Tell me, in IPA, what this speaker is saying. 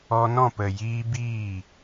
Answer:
ɔ˧ n ɔ̃˦˨ p ə˨ j iː˧ b iː˦˨

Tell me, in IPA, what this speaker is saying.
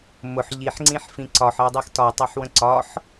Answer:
m ʊ ħ ʎ i ħ ŋ͡ǀ ĩ ħ f ĩ ǀ ɒ ħ ɜ dˤ i x t ɒ tˤ ɜ ħ w ə̃ ǀ ɒ ħ

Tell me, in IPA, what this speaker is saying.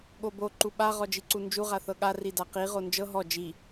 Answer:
ɠ o b o ǃ u ɓ a ʁ ɔ d͡ʒ i ǀ u n d͡ʒ u ʁ a θ ɤ ɠ a r i d a q i ʁ o n d͡ʒ ɤ ɦ ɔ d͡ʒ i

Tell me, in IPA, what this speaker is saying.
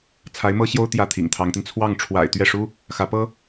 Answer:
t͡sʰ a˧˥ ɪ̯ m ɤ˥ ɕ j o˥ ʊ̯ t̪ j ä˥˩ t̪ʰ ḭ˨˩ ŋ t̪ʰ ɑ˧˥ ŋ t̪ i˧ n t͡sʰ w ɑ˥˩ ŋ ʈ͡ʂʰ w a̰˨˩ ɪ̯ t̪ ɥ ɛ˥˩ ʂ u˥ | x ä˧˥ p ɤ˥

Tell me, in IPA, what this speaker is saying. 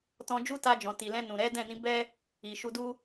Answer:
t ɔ̃˧ d͡ʒ u˦ t a˧ d͡ʒ ɔ̃˨ t i˨ l ɛ̃˧ n ũ˨ ɾ ɛ˨˦ d ɛ̃˦˨ n ĩ˨˦ b ɛ˦ | i˨ ʃ u˧ d u˦

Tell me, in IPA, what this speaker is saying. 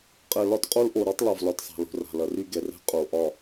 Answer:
qʼ ɛ˨ l ɒ˦ t qʼ o˦ l ʔ o˨ ɾ ɒ˦ tˤ l ɒ˨ v l ɒ˨ t sˤ a̤˨ l o̤˨ r a̤˨ l ɐ˨ r y˦ ɡ ɛ˨ r ɛ̤˦ qʼ o˨ ʔ ɒ˦˨

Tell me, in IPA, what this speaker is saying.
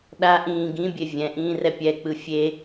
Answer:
ɗ a ʔ ĩː ɡ ĩ bʲ e vʲ ɛ̃ ʔ ĩː r ɛ pʲ ɛ k͡p ɯ fʲ e

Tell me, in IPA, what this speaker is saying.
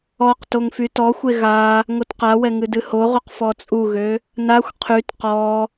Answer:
ɔ q t o ŋ f y t ɔ xʷ e ɣ a | ŋ o t q a w ɛ ŋ ɨ d ɨ h o ʁ o q f ɔ t͡sʼ u ɣ ø | n a xʷ qʰ y t q ɔ

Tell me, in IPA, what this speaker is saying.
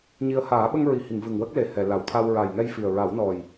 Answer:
ɲ i˧ ə̯ h aː˨˩˦ ɓ ə˧ ŋ ɹ i˨˩˨ h i˨˩˨ ŋ v ɨ˨˩ ŋ w ə˦˥ k̚ l e˨˩ h ɛ˨˩˨ l a˨˩˨ w t̪ʰ a˧ w ɹ a˨˩ j ŋ ɛ˧ j f i˨˩ ə̯ ɹ a˨˩˦ w n ɔ˨˩ j

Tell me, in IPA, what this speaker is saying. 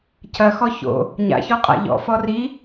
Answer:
cʰ ɐ x ɔ ç o̰ | ɲ a̰ ç ɔ qʼ a̰ ʎ ɔ̰ f ɔ r i

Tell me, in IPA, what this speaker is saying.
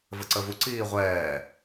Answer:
v ə ǀ ə v u ǀ iː ʁʷ ɛː

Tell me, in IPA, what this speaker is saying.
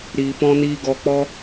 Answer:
ɾ iː˧ p ɔ̃˦ n iː˦ ɡ ɔ˧ k͡p ɔ˦

